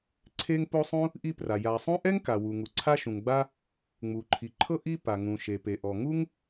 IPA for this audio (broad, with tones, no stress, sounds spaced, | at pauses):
ǀʰ e˥ ŋ p o˥ sˤ ũ˥ | ʔ i˥ p r a˩ j a˩ sˤ ũ˥ ʔ ɛ˥ ŋ k a˩ w u˩ ŋ u˩ ǀʰ a˥ ʃ ũ˩ ŋ ɡ͡b a˥ | ŋ͡m u˩ ǃʰ i˩ ǃʰ ɤ˥ ʔ i˥ p a˩ ŋ ũ˩ ʃ e˩ p e˩ ʔ ɔ˩ ŋ u˥ ŋ